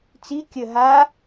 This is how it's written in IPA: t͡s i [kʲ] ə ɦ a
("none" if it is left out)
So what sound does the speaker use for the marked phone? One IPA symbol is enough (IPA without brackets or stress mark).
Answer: kʲ